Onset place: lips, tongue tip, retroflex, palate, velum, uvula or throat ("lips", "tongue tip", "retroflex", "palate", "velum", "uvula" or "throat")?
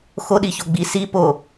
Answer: velum